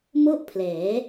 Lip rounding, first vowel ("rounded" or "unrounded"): rounded